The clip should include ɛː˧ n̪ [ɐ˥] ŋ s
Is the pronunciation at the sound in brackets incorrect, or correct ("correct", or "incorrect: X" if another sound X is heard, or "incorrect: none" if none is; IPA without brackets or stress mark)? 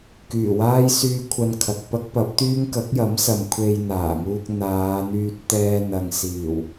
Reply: incorrect: ɐ˨